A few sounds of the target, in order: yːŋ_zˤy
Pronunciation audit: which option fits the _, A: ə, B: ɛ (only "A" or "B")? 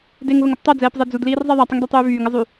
A